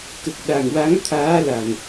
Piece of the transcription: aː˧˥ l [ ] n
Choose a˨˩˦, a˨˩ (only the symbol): a˨˩